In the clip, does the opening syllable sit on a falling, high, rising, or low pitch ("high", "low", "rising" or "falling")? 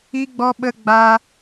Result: high